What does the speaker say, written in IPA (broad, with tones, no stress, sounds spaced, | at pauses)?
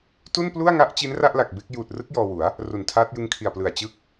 t u˥˩ n p l u˥˩ a̯ ŋ a˦˥ ʔ t͡ɕ i˦˥ n r a˥˩ ʔ l a˨˩ k̚ b e˦˥ k̚ j uː˨˩ t̚ r ɯ˦˥ k̚ j ɔː˧ w u˩˦ a̯ | r u˨˩ n tʰ aː˦˥ t̚ j ɯ˦˥ ŋ kʰ i˨˩ a̯ p l ɯ˨˩ a̯ t͡ɕ ɯ˦˥ k̚